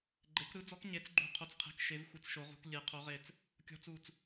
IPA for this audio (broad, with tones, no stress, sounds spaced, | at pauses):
ɡ͡ǃ e˩˥ k ɾ ɯ˧˥ d͡z ɔ˧˥ k ɲ e˧˥ t͡s ɡ͡ǃ ṳ˦˨ qʰ o˦˨ t͡s qʰ e̤˦˨ k ʃ e˧˥ v xʷ ɨ˦˨ t͡s ʃ o˧˥ ʁ ṳ˧˥ k lʲ e˦˨ qʰ o˧˥ ʁ e˦˨ t͡s | kʲ ɔ̤˧˥ t͡s u˦˨ t͡s